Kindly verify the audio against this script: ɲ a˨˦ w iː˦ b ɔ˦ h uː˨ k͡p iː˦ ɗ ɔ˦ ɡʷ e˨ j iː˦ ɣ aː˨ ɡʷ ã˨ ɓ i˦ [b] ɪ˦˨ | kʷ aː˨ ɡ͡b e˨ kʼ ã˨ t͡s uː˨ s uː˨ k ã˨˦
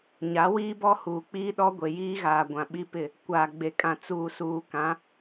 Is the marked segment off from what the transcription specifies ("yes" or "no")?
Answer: yes